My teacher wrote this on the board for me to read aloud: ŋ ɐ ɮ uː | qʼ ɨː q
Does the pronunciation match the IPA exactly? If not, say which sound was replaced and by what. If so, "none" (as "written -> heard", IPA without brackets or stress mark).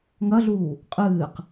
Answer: none